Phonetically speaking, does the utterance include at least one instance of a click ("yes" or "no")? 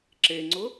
yes